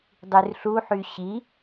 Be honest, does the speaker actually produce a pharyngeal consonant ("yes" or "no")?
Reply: yes